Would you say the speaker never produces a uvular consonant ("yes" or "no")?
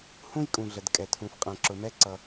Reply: no